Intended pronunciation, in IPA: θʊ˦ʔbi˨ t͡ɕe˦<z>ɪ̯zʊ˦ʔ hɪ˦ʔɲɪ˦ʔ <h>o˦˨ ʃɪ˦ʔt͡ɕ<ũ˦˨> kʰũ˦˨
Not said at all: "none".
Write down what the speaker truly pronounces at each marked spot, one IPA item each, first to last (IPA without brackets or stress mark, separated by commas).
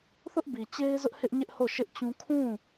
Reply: none, h, ũ˦